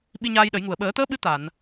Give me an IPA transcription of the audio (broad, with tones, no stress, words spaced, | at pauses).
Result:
ɓi˧ɲaː˧jɗə˨˩˦jŋu˨˩ə̯ ɓəː˨˩˦t̪əː˧˥ ɓɨ˧˥ t̪a˨˩˨n